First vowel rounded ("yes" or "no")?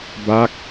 no